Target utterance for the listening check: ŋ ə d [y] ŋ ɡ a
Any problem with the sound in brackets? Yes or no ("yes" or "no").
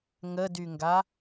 no